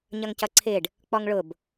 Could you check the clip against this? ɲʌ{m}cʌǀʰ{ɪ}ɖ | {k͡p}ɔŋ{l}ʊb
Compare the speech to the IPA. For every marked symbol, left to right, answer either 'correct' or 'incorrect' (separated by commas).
incorrect, correct, correct, incorrect